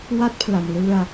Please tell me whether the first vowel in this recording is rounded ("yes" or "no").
no